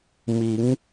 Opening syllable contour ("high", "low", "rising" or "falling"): rising